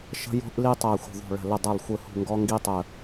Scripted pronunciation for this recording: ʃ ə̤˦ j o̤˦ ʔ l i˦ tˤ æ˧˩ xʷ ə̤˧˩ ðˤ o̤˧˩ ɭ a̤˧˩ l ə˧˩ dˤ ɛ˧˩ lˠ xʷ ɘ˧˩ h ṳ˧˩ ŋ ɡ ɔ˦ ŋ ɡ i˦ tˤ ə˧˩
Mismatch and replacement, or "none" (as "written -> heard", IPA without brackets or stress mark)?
a̤˧˩ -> ə̤˧˩